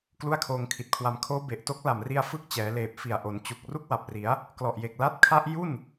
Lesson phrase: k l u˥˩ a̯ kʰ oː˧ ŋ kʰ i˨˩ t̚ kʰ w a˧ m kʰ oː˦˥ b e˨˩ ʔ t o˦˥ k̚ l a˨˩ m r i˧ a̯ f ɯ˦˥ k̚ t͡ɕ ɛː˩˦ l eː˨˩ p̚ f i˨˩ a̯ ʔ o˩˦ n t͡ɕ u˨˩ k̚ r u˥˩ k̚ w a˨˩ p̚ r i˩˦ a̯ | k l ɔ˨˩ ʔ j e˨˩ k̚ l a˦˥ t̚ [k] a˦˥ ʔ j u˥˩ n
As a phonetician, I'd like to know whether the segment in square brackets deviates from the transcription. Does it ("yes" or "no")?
yes